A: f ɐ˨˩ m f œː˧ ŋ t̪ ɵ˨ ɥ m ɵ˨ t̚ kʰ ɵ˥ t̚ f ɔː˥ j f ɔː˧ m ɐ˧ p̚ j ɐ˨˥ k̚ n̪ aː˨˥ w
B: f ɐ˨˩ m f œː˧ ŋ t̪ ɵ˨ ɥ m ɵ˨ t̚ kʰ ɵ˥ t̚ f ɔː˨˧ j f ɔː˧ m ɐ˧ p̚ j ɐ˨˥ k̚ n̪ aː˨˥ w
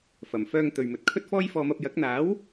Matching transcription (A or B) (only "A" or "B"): A